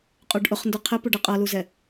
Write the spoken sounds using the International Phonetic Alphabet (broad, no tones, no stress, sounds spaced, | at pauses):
qʼ u ɖ ʔ ʊ χ n d ʊ qʰ ɪ p u ɖ ɪ qʼ ʌ l u z ɛ